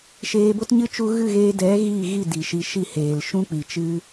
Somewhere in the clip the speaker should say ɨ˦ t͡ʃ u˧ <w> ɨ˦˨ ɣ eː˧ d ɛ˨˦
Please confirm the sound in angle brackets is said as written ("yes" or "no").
no